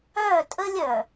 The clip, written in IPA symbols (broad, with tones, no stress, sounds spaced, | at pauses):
œ˦˨ tʼ ə˦ lʲ œ˨